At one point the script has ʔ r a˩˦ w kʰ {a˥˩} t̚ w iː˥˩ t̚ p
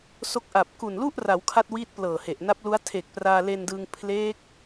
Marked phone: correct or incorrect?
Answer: correct